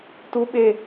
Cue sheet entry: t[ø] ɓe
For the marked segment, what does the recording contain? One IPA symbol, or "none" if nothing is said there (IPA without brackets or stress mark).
u